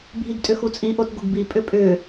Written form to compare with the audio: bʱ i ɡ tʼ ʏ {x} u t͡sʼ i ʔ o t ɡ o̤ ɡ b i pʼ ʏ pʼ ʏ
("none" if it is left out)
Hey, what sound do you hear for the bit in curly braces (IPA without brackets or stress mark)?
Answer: x